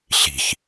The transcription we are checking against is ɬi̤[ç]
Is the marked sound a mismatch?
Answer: no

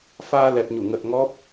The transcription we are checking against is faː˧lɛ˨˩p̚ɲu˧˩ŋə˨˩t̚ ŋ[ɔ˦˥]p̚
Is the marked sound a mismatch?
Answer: no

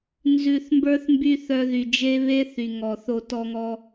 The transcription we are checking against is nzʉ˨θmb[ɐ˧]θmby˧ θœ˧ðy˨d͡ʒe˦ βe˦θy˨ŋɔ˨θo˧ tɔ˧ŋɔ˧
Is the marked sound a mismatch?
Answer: yes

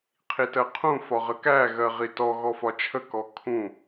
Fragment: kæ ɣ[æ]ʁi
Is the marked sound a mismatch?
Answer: yes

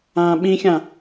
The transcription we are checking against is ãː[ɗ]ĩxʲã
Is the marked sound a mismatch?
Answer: yes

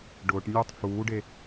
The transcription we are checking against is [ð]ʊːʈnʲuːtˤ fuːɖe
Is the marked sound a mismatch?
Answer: yes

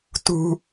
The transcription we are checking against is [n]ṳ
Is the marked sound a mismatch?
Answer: yes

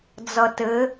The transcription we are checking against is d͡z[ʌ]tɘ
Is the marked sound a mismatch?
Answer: no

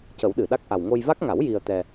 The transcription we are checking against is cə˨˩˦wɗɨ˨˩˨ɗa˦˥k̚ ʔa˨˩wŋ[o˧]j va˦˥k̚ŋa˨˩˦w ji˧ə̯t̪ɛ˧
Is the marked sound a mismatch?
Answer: no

